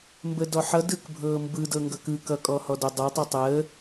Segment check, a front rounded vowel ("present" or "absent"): absent